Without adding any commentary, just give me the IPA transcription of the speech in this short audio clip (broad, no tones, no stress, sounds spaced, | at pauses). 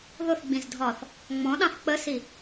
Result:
ð ʊ θ ɡ͡b ĩ z dʱ ɒː θ | ŋ͡m ɔ̃ ɗ ɑ̃ θ k͡p ə s i